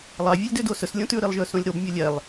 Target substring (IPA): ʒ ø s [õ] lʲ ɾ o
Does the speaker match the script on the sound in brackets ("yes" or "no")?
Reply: yes